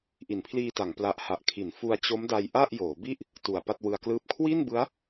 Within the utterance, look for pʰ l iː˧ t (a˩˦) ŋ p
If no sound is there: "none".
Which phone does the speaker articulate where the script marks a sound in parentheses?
a˩˦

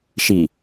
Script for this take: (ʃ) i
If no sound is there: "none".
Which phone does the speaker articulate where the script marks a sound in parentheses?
ʃ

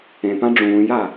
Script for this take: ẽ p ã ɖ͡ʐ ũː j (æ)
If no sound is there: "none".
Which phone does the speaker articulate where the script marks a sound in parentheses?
a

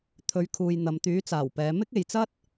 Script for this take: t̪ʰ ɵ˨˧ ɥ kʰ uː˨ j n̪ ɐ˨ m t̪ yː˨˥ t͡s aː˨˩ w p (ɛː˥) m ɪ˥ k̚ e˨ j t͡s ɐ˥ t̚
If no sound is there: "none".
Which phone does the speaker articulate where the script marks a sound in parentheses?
ɛː˨˧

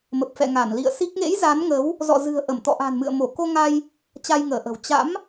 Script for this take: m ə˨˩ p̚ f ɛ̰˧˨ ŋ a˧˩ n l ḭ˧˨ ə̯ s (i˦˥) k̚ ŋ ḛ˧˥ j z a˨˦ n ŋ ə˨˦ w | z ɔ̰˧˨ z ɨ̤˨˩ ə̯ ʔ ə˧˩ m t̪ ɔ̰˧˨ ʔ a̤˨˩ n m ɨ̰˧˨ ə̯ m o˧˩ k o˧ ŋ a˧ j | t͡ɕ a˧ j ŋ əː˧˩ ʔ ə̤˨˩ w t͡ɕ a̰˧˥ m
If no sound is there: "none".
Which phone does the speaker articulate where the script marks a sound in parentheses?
i˦˥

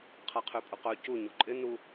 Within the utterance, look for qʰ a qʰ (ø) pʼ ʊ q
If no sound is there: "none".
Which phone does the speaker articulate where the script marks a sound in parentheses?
ø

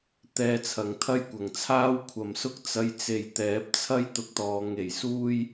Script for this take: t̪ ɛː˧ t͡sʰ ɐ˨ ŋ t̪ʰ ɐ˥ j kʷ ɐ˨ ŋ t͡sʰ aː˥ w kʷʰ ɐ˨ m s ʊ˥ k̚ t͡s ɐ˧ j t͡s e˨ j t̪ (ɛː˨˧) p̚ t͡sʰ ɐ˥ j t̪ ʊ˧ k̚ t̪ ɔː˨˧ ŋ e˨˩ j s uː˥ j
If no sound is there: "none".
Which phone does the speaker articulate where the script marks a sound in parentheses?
ɛː˨˥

